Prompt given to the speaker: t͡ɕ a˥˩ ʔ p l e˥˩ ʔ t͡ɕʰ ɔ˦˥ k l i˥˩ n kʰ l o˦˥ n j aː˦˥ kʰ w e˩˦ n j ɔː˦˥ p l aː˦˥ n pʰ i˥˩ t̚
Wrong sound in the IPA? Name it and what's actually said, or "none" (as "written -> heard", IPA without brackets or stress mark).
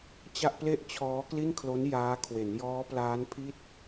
ɔ˦˥ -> ɔː˦˥